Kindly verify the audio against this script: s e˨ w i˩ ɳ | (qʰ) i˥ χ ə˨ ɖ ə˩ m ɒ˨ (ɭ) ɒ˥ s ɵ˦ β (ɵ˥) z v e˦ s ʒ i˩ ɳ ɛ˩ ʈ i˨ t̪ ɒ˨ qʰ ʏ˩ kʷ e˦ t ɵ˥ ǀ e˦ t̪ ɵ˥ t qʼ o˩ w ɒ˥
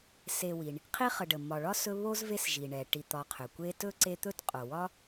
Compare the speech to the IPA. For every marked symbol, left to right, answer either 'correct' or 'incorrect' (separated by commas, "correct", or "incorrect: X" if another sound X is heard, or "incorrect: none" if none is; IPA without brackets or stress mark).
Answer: correct, correct, incorrect: o˥